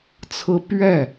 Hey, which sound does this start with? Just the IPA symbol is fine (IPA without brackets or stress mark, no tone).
t͡sʰ